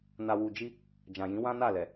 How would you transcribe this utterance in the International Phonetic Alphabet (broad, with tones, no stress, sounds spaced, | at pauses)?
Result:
n a˨ w u˨ d͡ʒ i˧ | d͡ʒ ã˨ j ĩ˨˦ w ã˦ n a˦˨ l ɛ˨